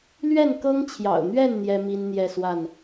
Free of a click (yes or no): yes